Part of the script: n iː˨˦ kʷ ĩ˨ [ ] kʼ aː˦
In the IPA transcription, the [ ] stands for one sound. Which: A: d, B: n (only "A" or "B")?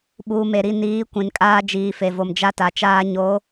B